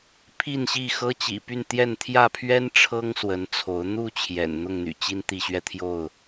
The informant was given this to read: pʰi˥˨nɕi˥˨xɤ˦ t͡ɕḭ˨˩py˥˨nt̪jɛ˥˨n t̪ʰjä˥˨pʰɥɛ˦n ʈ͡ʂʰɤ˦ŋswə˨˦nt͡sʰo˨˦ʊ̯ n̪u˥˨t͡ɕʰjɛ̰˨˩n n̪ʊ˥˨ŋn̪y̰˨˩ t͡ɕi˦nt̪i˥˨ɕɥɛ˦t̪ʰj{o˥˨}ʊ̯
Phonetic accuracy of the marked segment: correct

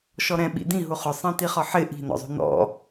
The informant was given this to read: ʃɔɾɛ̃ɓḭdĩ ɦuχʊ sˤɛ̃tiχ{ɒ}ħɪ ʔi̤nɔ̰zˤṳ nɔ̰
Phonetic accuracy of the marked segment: correct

